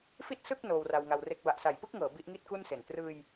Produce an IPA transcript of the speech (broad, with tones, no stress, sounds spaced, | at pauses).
f i˥˩ t̚ s ɯ˥˩ k̚ n oː˧ w r a˧ w ŋ a˧ w r e˦˥ k̚ b a˨˩ ʔ s a˨˩ j p ɯ˥˩ k̚ ŋ ɤː˩˦ b i˦˥ ʔ ŋ i˥˩ t̚ k u˥˩ n s e˨˩ n t r ɯː˧ j